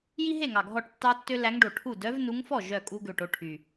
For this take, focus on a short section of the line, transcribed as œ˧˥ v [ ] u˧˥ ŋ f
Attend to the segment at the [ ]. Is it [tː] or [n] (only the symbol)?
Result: n